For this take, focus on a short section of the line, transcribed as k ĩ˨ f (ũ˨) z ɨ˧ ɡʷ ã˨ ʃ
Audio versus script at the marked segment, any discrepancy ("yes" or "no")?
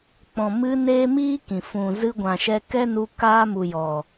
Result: no